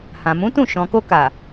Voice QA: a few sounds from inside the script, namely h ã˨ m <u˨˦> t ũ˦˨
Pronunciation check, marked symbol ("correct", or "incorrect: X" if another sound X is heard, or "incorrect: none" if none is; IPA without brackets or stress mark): incorrect: ũ˨˦